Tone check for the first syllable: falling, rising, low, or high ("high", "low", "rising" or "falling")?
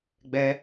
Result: high